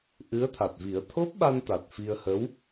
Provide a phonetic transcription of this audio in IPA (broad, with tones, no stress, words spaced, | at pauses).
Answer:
ʔɨ˧˥ə̯t̪ʰa˨˩t̚vi˨˩˦ə̯ t̪ʰo˦˥p̚ɓa˧n t̪a˨˩t̚fi˧ə̯hə˧˥w